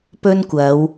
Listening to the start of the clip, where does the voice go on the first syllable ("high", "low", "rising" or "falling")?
high